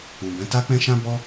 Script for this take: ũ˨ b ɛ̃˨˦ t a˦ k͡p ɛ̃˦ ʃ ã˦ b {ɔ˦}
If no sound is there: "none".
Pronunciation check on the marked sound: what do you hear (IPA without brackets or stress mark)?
ɔ˦